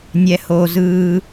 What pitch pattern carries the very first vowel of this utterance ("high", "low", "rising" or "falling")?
low